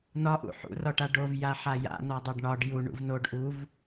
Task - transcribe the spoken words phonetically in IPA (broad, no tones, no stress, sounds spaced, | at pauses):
n ɒ ʔ ṵ ħ ṵ r ɒ ʈ a ɖ o v j a ħ a j a̰ n ɒ dˤ o ɖ ɳ ɒ ɖ j u ɳ ṵ v n o ɖ ʔ u v